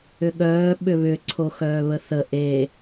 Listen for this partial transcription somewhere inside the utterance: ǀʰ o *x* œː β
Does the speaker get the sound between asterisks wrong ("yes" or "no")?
no